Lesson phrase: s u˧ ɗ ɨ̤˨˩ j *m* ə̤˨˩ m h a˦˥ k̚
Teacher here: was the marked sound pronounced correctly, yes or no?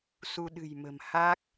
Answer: yes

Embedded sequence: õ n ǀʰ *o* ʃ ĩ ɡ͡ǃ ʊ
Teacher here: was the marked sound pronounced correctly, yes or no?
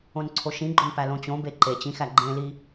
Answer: yes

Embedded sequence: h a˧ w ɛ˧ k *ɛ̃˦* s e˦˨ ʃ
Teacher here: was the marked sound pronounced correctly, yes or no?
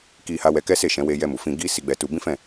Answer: no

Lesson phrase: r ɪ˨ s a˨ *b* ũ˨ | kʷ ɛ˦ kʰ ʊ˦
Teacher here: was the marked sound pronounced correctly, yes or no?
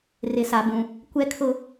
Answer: yes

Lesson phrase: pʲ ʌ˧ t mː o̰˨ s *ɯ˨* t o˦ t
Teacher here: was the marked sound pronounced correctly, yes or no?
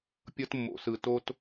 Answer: yes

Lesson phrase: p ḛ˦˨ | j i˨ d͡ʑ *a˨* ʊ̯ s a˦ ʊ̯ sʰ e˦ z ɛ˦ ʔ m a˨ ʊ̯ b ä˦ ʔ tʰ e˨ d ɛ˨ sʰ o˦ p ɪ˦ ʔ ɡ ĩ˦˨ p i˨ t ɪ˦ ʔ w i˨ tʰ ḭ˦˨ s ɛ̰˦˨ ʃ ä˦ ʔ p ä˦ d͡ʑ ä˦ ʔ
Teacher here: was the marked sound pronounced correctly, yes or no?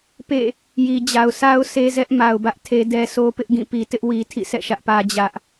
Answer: yes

